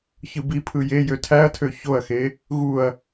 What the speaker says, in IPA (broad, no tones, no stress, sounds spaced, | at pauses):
ç ɯ b i pʰ ɯ j e j ø tʰ æ ɐ̯ tʰ ø ç o ɐ̯ x e | ɣ u ɐ̯